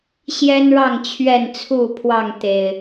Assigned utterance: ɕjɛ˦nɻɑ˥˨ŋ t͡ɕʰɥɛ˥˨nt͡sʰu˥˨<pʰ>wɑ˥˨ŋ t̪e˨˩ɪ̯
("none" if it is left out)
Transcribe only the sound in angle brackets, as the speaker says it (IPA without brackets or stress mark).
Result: pʰ